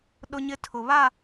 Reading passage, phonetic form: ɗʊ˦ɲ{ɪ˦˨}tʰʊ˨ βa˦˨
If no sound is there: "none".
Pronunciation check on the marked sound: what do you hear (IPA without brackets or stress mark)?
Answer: ɪ˦